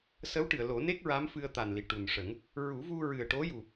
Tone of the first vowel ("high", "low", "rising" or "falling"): rising